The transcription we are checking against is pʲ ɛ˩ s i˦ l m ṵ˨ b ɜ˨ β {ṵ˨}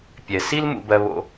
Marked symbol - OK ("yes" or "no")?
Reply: no